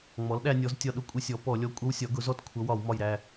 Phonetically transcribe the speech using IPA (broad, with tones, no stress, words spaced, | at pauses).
ŋ͡mɔ˩˥lɗæ˧nʲɔ˩˥z tʲɒ˧˩ɗʊ˧˥ kʷʼɪ˧˥sʲɔ˩˥ pɔ˧˩˧lʲɔ˧ kʷʼʌ˧˥wsʲɒ˩˥ ɡʊ˩˥zɔ˧t kʷʰʌ˩˥wɒ˧˩˧wmɒ˧˩jɾæ˧˩